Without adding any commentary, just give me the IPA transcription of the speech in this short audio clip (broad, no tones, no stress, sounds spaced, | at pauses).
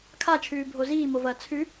kʰ a t͡ʃʰ ʉː bʱ o z iː m o v ɐː t͡sʰ ʉ